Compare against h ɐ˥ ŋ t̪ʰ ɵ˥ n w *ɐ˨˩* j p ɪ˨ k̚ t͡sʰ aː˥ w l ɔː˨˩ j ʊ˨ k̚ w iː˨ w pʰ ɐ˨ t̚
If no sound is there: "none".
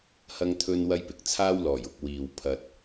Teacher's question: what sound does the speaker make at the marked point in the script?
ɐ˥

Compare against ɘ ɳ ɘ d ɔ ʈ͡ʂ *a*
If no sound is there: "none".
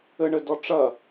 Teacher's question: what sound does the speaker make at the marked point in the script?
ɐ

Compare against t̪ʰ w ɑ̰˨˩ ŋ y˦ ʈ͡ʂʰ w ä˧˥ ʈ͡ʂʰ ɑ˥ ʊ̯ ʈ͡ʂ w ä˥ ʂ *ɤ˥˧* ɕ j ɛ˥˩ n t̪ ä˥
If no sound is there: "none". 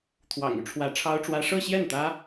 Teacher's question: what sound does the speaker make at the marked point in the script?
ɤ˥˧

